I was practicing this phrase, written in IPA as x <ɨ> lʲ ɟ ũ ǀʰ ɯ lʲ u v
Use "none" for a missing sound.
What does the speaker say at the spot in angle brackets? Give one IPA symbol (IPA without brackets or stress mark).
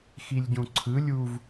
i